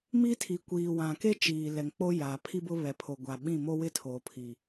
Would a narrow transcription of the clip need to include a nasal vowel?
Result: yes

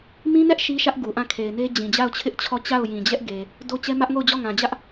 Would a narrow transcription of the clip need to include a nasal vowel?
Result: yes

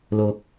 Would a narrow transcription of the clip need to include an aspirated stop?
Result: no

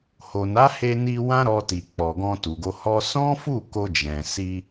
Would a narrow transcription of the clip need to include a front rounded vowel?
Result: no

